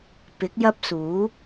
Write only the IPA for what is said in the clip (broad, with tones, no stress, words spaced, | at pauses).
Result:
pɪ˨˥k̚jɐ˥p̚suː˨˥